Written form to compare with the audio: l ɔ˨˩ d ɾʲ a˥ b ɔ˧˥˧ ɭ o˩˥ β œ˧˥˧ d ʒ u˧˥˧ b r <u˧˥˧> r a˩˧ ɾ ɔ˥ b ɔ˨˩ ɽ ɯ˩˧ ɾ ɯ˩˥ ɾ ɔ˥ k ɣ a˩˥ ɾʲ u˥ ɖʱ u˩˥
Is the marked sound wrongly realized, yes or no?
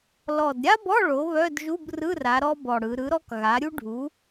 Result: yes